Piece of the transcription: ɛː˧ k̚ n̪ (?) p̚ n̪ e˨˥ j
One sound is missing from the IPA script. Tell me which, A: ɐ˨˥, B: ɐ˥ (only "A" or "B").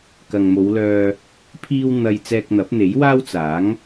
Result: A